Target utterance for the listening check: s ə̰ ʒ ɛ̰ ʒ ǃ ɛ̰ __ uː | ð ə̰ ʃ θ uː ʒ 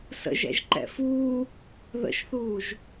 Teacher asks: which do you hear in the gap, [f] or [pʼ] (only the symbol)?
f